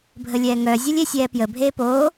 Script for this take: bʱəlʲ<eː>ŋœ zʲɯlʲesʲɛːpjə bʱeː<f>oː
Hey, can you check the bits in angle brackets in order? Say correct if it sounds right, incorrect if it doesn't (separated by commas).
incorrect, incorrect